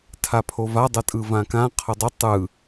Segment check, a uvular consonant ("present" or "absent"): present